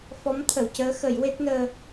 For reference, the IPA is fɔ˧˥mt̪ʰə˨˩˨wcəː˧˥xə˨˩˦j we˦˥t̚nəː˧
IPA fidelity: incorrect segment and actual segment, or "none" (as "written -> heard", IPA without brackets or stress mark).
none